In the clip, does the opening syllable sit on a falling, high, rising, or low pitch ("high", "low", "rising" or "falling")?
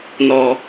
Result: low